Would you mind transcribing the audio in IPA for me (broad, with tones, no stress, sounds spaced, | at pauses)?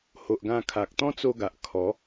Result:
h o˨ ʔ ɡ ã˧ kʰ a˨ k̚ t̪ ɔ̃˦ t͡s o˧ ɡ a˨ ʔ kʰ ɔ˨˦